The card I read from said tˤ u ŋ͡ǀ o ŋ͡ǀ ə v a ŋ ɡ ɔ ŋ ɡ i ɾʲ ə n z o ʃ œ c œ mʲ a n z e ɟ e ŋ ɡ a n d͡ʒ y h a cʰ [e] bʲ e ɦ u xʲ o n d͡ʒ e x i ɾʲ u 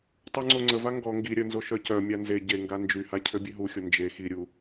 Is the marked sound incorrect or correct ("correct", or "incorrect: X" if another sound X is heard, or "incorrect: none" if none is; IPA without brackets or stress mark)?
incorrect: ø